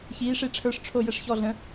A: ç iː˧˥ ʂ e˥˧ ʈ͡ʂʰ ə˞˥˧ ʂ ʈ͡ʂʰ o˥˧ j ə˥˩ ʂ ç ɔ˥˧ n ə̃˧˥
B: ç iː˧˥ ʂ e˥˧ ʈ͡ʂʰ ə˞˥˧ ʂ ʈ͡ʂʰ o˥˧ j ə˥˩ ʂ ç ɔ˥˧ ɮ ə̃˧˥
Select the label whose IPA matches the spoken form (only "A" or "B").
B